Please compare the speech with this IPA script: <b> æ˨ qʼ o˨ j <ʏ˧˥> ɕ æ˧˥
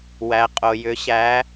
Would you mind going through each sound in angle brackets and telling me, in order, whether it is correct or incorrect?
incorrect, correct

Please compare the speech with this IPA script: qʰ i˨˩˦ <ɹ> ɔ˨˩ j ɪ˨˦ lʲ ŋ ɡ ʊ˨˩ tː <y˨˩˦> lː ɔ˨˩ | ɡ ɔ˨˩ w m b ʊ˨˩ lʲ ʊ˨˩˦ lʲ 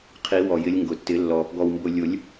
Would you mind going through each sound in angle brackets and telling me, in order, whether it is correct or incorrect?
incorrect, incorrect

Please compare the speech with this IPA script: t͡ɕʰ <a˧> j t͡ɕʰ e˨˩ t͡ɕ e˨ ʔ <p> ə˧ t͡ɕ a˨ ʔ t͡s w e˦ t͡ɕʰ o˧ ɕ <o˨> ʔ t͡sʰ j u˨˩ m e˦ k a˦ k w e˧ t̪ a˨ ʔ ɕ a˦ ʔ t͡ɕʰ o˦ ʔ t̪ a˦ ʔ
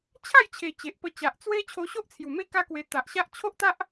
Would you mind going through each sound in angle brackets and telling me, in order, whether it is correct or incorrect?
incorrect, correct, incorrect

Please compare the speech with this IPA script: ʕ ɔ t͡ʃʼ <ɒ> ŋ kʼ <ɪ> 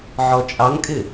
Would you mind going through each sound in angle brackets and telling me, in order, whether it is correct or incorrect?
incorrect, correct

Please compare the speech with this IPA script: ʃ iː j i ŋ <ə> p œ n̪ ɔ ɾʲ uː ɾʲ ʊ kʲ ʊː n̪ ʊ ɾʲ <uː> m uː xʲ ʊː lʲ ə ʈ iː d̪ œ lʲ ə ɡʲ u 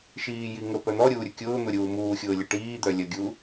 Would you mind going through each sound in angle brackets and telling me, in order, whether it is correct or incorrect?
correct, correct

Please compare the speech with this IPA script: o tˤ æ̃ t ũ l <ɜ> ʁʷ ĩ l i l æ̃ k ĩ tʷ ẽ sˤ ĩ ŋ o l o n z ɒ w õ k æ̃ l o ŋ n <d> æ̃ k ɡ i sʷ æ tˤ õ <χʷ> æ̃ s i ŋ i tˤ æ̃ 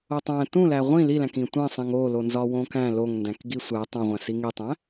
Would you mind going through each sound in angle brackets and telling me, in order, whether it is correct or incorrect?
incorrect, correct, incorrect

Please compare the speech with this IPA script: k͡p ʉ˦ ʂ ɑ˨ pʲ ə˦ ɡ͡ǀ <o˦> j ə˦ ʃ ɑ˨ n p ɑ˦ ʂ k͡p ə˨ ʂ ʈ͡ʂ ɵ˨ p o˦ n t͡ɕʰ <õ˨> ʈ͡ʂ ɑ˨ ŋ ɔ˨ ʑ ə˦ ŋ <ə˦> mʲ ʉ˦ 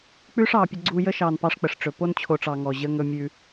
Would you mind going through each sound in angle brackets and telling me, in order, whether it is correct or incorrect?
incorrect, incorrect, incorrect

